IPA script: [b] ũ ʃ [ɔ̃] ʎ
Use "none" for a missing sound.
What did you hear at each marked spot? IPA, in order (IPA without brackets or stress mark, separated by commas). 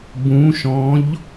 b, ɔ̃